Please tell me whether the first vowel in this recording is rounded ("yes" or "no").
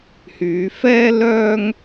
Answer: yes